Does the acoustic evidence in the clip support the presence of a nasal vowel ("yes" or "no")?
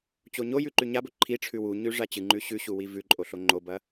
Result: no